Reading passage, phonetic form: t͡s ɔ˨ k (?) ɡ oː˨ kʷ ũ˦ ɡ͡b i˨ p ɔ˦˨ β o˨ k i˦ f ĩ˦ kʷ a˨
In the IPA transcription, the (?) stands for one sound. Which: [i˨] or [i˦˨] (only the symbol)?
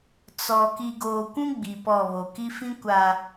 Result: i˨